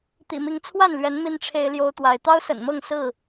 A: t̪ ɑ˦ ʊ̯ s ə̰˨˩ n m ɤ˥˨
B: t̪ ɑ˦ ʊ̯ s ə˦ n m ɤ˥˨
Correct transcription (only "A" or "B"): A